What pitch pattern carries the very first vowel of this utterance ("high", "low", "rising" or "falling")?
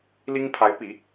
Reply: high